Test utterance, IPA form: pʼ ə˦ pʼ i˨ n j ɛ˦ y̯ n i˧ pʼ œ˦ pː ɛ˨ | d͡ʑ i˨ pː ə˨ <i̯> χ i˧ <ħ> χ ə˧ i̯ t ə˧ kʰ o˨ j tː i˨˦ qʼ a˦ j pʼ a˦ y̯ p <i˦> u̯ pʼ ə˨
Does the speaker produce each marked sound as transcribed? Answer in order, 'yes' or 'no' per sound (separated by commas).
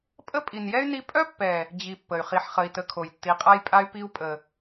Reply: no, yes, yes